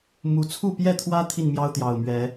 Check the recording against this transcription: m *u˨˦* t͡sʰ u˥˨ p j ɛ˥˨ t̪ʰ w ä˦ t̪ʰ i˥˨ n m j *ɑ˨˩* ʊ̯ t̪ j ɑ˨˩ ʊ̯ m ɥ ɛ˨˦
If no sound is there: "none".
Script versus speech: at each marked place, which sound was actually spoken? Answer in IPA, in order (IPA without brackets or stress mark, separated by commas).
u˨˦, ɑ˦